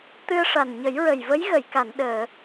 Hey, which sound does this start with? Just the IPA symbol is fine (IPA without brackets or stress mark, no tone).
t̪